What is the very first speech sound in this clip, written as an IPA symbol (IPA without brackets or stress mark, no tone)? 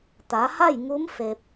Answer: t̪